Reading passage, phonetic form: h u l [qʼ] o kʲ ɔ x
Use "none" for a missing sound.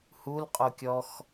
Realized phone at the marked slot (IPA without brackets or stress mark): qʼ